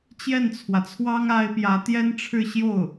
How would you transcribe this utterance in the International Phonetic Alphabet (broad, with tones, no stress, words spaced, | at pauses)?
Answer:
t͡ɕjɛ˥˩nt͡sʰwä˩t͡sʰwɑ˥ŋ a˥ɪ̯ pjä˧˥ t̪jɛ˥nʈ͡ʂʰɻ̩˥˧ɕjo˥˩ʊ̯